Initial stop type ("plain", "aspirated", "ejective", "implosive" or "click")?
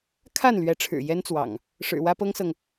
aspirated